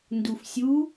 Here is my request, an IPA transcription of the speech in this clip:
ndufsʲu

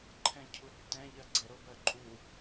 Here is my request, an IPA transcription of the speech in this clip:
ǃʰɛ̃cʰutːɛ̃ ʎɜɡ͡ǀɛɾo bɜǃʼu

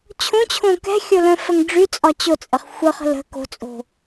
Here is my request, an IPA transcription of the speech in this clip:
t͡ɕʰõt͡ɕʰõ kɛ̤xʲolœ̃ fəŋɖ͡ʐy t͡sʼɒt͡ɕot͡sʼəχ xʷə χə̤lə̤ ko̤t͡sʼo̤

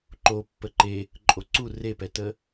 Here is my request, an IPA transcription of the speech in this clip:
ǃo pːəǃe | ǃʼoǀu repɛtə

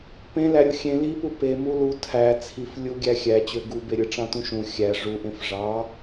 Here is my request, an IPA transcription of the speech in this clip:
pẽ læɾʲoxʲẽ lipu pe mulu tʰæ t͡sʰif lʲuɡʲæ xʲæt͡ɕø ɡubeɾʲɯ ʈ͡ʂɑ̃tũʃũ xʲæ ʐuʔẽf ʐɑ

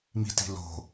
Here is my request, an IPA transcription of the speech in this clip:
mi̤ti̤ lo̤

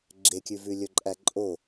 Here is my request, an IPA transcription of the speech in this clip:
ɡ͡ǁekʲʉvʉ lʲɵǃʼæǃʼo

